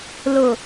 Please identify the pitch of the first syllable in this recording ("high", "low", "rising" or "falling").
low